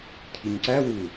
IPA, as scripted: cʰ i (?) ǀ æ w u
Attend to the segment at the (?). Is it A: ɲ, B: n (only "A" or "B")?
A